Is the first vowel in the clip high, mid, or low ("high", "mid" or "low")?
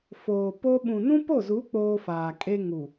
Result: mid